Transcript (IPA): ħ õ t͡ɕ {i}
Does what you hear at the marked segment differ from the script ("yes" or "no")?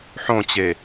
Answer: yes